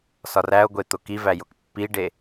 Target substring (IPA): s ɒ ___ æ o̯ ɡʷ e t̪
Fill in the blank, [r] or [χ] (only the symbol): r